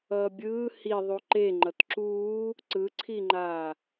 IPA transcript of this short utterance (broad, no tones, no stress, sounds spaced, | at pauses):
ʌː bʲ ɯː h i ðˤ u ǃ e ŋ͡ǃ ʌ t ǁ uː | ǀ ɯ ǀʰ i ŋ͡ǃ aː